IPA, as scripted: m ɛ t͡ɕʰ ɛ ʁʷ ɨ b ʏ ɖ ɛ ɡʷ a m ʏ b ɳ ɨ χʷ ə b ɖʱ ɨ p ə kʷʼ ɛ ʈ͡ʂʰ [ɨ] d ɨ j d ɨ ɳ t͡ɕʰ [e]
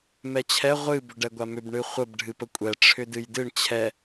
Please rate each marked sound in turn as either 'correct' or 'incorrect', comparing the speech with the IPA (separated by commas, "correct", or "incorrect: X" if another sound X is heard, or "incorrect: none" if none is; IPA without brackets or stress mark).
incorrect: ʏ, incorrect: ɛ